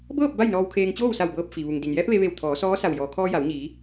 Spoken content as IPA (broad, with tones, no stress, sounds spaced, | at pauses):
b ɤː˥˨ p̚ b a˥˨ j n ɔː˧ w kʰ eː˧ ŋ t͡ɕ oː˥˨ w s a˧˩ w b ɤː˧ p̚ f i˩ ʋ u˩ ŋ d i˩ n j ɛː˧˥ p̚ ʋ e˧ ʋ e˧˩ w t̪ʰ ɔː˩˧ s ɔː˧˥ s a˧˩ w j ɔː˩ kʰ ɔː˧ j a˩˧ w ɲ iː˩˧